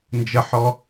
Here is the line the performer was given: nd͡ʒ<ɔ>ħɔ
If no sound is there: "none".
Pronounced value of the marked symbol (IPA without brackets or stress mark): ə